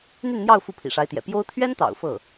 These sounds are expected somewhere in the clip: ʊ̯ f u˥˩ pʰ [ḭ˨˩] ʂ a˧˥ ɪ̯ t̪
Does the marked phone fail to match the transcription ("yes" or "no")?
no